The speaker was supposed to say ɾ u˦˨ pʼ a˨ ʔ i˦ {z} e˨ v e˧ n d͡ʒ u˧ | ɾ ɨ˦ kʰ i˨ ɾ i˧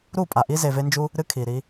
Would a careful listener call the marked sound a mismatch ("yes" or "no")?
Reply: no